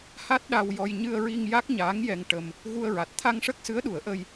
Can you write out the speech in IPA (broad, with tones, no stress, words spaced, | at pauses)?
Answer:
ha˦˥t̚ ɗa˧wjɔ˧j ɲɨ˧ə̯ɹi˧ŋ ja˦˥k̚ɲaː˧˥ŋjɛ˧ŋʈə˧m | ɣu˧ə̯ɹa˨˩t̚ t̪ʰa˧ŋʂə˦˥k̚sɨ˧˥ə̯ɗu˨˩˦ə̯ ʔə˧j